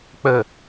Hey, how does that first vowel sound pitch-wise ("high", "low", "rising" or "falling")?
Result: low